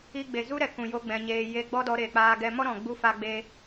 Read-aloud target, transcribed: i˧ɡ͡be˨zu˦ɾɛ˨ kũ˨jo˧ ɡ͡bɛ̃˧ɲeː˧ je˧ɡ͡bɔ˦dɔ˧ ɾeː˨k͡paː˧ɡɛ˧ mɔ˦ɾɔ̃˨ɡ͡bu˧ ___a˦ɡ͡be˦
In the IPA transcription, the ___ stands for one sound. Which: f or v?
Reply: f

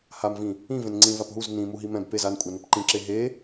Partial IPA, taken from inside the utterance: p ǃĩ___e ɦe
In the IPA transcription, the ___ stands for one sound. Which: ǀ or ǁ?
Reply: ǁ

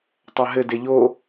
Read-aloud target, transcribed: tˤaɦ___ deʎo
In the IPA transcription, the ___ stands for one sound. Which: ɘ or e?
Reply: ɘ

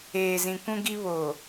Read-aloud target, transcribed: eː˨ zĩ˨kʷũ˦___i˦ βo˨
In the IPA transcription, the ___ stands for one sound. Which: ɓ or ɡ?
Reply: ɡ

